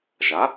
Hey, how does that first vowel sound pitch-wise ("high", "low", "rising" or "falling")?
rising